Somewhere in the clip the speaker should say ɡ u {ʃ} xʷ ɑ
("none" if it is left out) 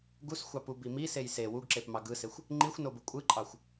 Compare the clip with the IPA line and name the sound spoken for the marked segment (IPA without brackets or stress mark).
s